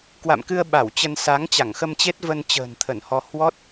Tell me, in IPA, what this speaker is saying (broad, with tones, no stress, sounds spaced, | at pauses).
k w a̰˧˨ m k ɨ˧ ə̯ ɓ a˧˩ w t͡ɕ ə˧ n s a˨˦ ŋ t͡ɕ a˧˩ ŋ x ə˧ m t͡ɕ e˦˥ t̚ v ə˧ n t͡ɕ ə̤ː˨˩ n t̪ʰ ə˧˩ n h ɔ˧ h w ɔ˦˥ t̚